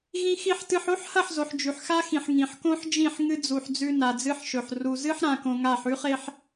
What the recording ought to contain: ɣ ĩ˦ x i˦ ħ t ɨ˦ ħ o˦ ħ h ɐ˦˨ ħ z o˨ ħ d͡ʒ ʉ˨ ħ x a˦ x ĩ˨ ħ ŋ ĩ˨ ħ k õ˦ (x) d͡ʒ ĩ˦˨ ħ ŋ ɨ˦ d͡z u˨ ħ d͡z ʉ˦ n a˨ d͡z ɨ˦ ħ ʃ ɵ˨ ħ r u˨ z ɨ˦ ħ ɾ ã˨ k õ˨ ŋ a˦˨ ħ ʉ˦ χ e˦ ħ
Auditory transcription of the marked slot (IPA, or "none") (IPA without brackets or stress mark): ħ